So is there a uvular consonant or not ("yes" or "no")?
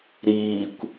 no